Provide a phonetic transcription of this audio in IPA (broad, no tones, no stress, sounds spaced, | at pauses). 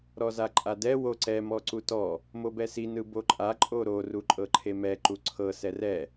ɾ ɔ z a ǃʼ a d ɛ w o ǀ ɛ m ɔ ǀ u t ɔ | m o b ɛ s i n ɯ b o ǃʼ a ǃʼ o ɾ o r u ǃʼ ɤ ǃʰ e m ɛ ǃ u ǀʰ ɤ s ɛ r ɛ